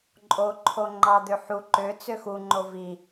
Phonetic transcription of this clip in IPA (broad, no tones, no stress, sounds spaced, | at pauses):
ǃʼ o ǃʰ o ŋ͡ǃ ɑ d̪ ø ħ u ǃ ø t͡s ø x u ŋ͡ǃ o v i